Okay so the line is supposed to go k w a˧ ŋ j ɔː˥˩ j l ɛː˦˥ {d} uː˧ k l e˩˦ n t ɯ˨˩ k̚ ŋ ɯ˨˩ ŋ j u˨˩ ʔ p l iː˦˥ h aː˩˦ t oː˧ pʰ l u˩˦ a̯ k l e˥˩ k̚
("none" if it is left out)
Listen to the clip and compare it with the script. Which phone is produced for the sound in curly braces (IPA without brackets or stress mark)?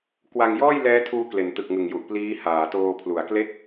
tʰ